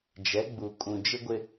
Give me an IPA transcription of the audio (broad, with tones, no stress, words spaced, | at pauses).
d͡ʒɛ˨˦ɡ͡bu˨kʼũ˨ d͡ʒɪ˦ɡʷɪ˦